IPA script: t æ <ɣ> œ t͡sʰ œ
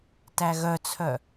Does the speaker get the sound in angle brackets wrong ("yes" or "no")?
no